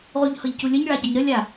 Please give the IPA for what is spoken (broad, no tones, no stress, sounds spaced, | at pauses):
ʁ u ʎ h ɤ ʎ c u lʲ ə ɲ ɭ a ɟ ə ɲ ɾ ə lʲ a